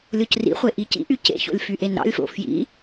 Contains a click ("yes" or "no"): no